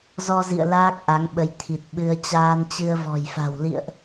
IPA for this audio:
zɔ˧zḭ˧˨ə̯ laː˦˥k̚ʔa˨˦ŋɓə˨˦j t̪ʰi˨˩t̚ɓɨ˧ə̯ t͡ɕaː˧nt͡ɕɨ˧ə̯vɔ̤˨˩jfa̤˨˩w lḭ˧˨ə̯ʔ

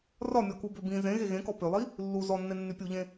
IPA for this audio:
rɒmʲɔku bøbĩ zẽɣe ɣẽkɔ pølˠi | lːu zɔnːe nːypʲuʎẽ

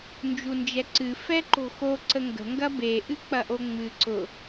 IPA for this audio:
nd͡ʒund͡ʒɛǀɨ fɛǃo̤xo ǀəŋɡə̤ ŋɡɐbe ʔɨk͡pɐʔoŋ͡mɨ ǀʊ

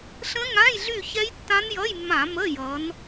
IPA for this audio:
ɬə̃˦˥ŋã˧˥˧jɮy˦˨ çɛ˦˥jtːã˦˥njʌ˧˥˧jmːã˧˩˧ mə˧˥˧jʌ˨˦n

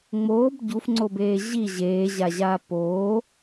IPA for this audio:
ŋ͡moːb ɟufŋ͡ǀobeː ʑi ʑeːʑaʑaː poː

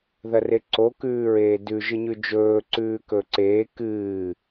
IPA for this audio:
ðɐreǀo kʉːɹeːdʉ ʒɨɲʉd͡ʒɵː ǀʉːkɵǀeː kɨː

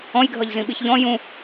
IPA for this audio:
ɔ̃jɡʱʌʎzĩɓiç ʎɔ̃ jũ

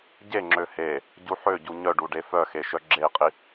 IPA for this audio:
ɟeŋ͡ǁø he | ɟuħøɟu ɲœɖu ɖefœxe ʃœɡ͡ǁei̯qʼi

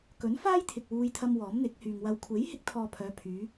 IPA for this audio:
kɵ˨˥nfaː˥j t̪ʰɪ˨k̚wuː˧jt̪ʰɐ˧m wɔː˨˥mn̪ɪ˨˥k̚hyː˨ŋ wɐ˨wkʷʰe˨˥jhɪ˧k̚t̪ʰɔː˨ pʰœː˨˧pʰyː˨˧

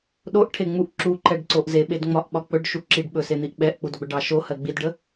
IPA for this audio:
ɗoʔʈʰeŋ͡muʔ ǁuǃɛɖǀoʔ zeɓedŋ͡mɒʔɓɒ k͡pɵɖʃu ǁiɖɓɵsen̪iʔ ɓɛʔk͡pudɡ͡bɵɖɑ ʃohɜ ɡ͡bidɖə

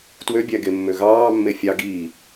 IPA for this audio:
twøbʲæɡemːø ɣɑːmːe fʲɑ ɡiː

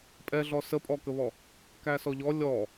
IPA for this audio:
pʼɛɮɔ səpʼɔkəβɔ | kæsɔʎɔ lʲɔ

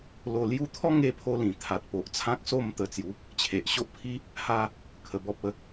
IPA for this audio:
lo˧lju˦ t̪ʰɔ˦ŋe˧pʰo˧lĩ˨˩ t̪ʰa˨t̚po˨ʔ t͡sʰã˦k̚so˥˧mt̪ə˧t͡sju˨˦ | t͡ɕʰe˨ʔɕo˦ʔpʰi˦ | ha˧ | kʰə˧ bɔ˦p̚ə˧

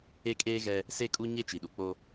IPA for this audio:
e˦kʼeː˦ ɣɛ˦ | se˦kʼu˦ɲe˦ t͡ʃi˨ɗu˨k͡po˦

